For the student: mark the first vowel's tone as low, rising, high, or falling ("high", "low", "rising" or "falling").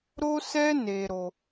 high